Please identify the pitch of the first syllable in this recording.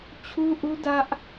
high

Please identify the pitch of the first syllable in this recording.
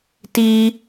high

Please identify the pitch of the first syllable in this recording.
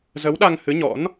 rising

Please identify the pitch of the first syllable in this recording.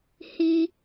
high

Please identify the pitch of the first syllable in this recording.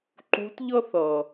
rising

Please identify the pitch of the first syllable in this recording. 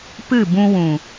falling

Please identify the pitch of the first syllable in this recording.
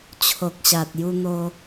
low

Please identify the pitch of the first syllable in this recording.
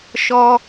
high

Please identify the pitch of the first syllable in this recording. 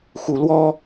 rising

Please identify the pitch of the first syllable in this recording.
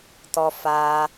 high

